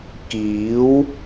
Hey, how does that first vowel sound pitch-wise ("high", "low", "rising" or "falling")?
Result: rising